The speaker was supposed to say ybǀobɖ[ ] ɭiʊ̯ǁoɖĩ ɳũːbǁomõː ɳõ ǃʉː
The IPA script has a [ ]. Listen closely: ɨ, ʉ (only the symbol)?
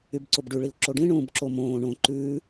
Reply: ʉ